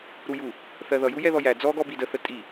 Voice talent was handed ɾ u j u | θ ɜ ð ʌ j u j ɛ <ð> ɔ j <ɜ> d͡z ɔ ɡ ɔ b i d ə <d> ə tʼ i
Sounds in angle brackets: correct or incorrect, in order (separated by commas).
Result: correct, incorrect, incorrect